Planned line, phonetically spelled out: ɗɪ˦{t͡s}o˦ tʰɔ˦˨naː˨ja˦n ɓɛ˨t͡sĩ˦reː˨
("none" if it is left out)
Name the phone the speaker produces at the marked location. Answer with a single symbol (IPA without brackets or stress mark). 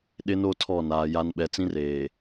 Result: n